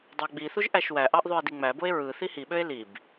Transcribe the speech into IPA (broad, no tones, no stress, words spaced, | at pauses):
dˤɑɡ͡biθuʒ ʔæʃwæʔɑʔ ðˤye̯diŋ͡mæboe̯ ɹɯ θihiɓøe̯ lib